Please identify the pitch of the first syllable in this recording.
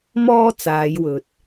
high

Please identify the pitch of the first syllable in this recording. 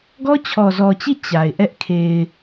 high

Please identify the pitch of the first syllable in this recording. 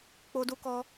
high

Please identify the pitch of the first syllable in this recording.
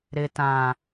low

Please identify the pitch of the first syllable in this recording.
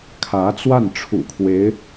rising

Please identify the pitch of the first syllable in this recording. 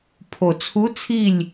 low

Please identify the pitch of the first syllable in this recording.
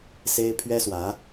high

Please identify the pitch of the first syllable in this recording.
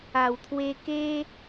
low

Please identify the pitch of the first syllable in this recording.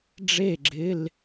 falling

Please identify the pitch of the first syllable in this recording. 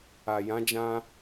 low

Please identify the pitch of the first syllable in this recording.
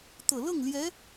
low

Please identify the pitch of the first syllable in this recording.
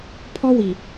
high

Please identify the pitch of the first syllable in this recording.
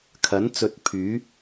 rising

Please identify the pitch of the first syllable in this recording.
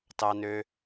low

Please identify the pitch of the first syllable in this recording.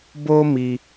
high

